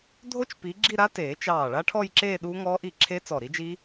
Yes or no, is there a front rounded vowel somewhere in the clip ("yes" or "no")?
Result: no